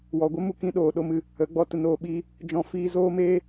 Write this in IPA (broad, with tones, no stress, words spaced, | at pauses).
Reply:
wɔ˨ɡʷə˦mu˧ kĩ˧ɗoː˨ɗo˧mɨ˧ | ə˨˦ɡ͡bɔ˧tə˧ noː˧ɓiː˧ | d͡ʒɔ̃˧ fiː˧zoː˦meː˦